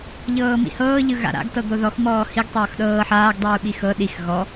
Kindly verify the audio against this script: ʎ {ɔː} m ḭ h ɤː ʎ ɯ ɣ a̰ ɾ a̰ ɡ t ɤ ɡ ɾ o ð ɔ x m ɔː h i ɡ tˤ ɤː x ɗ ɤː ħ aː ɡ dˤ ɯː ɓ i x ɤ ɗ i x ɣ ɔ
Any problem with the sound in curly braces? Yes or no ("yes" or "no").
yes